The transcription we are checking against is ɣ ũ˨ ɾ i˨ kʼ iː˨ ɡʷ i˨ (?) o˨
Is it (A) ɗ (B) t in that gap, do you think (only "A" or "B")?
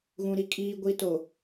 B